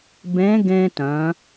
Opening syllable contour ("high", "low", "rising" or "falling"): rising